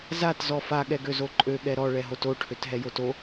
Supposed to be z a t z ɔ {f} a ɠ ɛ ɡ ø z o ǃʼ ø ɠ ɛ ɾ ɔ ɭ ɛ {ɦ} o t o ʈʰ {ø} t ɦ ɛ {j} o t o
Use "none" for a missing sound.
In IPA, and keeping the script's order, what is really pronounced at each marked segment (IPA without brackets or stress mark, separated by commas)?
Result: f, ɦ, ø, j